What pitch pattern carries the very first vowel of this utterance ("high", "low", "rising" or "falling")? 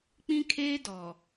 high